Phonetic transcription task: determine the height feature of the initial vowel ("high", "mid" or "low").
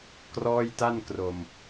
mid